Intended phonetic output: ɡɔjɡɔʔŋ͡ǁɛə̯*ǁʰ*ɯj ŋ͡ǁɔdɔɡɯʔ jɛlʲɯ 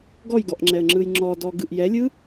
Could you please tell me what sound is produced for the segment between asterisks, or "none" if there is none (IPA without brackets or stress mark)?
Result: ŋ͡ǁ